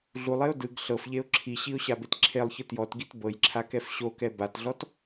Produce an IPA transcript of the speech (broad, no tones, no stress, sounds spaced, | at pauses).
ɮ u lˠ e ʊ̯ d ɯ ɡ ɬ ɤ f ʎ e ʊ̯ ǁʰ i ɕ i ʊ̯ ɕ a b e t ǁʰ e lˠ ç ɯ t j ɔ t ɡ i t b ɤ j ǁʰ a k ɛ f ɕ o k ɛ b a t ɮ ɔ t